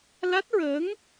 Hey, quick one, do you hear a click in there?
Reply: no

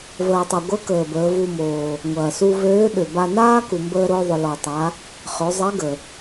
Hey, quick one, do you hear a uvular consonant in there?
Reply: yes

